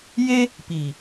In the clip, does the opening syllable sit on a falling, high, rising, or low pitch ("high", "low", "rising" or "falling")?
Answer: high